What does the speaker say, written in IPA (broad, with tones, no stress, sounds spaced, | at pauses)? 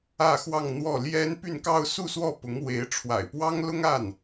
ä˥˧ x w ɑ˥˧ ŋ n̪ w ɔ˥˩ l j ɛ˥ n p y˥˧ n k ɑ˥˧ ʊ̯ s u˥˧ s w ɔ˥˩ p ʊ˧˥ ŋ w e˧˥ ɪ̯ ʈ͡ʂʰ w a̰˨˩ ɪ̯ p w ɑ˥ ŋ l ʊ˥ ŋ a˥˩ n